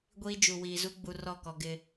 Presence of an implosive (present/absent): absent